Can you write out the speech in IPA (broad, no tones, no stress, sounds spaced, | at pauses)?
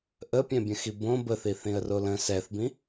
ʔ ə pʲ ɛ̃ bʲ ə̃ x i b õ b ə θ i θ ĩ ə̯ r o l ə̃ s ɛ θ b ĩ